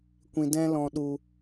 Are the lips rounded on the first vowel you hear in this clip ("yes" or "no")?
no